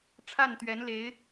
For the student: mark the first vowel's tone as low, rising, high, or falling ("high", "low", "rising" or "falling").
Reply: falling